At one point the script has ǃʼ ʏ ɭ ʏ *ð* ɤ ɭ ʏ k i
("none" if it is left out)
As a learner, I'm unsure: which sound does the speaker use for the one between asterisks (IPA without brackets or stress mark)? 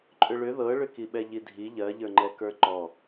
ð